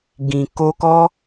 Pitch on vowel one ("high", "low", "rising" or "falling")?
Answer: low